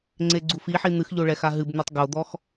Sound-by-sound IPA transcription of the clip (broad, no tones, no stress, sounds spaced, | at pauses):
ŋ͡ǀ e ɡ͡ǀ u f i ħ i n̪ ɨ x ʎ o ɭ ɛ x a ɦ ɨ b n̪ e tˤ ɡ o d̪ ɔ x